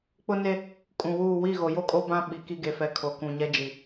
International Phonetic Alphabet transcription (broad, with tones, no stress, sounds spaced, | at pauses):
k͡p ʊ˦ n e˦ | kʼ ũ˨ w uː˦˨ w i˦˨ ɣ o˨ j o˦ kʼ o˦ b ã˦ ɓ i˨ k i˦ ɡ e˨ f ɛ˨˦ kʰ o˨ k ũ˨ ɲ ɛ˦ d͡ʒ i˨